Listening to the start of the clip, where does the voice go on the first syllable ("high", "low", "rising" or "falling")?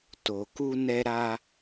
low